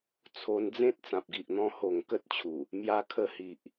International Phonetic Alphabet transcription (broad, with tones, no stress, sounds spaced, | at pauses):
t͡sʰ o˧ n d͡z ẽ˦ t̚ t͡s ã˨ p̚ ɡ i˨ ʔ n̪ ɔ̃˧ h o˨˩ ŋ k ə˦ t̚ t͡ɕʰ u˨˩ | m j a˧ kʰ ə˧ h i˨ ʔ